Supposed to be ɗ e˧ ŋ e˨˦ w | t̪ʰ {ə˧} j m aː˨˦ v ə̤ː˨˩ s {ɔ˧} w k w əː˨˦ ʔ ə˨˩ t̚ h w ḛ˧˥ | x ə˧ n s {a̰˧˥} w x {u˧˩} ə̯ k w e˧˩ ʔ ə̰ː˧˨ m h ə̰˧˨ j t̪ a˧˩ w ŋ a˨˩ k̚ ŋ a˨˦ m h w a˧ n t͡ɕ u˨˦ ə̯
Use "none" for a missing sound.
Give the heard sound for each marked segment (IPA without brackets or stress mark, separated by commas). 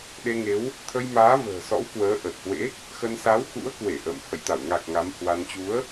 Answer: ə˧, ɔ̰˧˥, a˨˦, ṵ˧˥